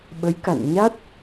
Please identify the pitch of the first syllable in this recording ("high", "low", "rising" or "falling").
rising